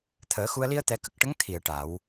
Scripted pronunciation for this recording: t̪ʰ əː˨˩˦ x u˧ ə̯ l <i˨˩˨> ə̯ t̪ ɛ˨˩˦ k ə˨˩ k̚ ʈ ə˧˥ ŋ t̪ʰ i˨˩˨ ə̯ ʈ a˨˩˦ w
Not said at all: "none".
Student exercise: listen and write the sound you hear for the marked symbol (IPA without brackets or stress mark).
i˧